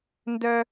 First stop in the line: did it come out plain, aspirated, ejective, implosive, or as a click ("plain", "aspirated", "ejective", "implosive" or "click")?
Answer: plain